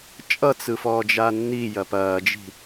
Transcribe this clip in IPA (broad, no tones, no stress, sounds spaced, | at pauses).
t͡ʃʼ ʌ t͡s ɯ f ɔː d͡ʒ a nː i j ɐ p ɐː d͡ʒ i̤